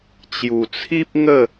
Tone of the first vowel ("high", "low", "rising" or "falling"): low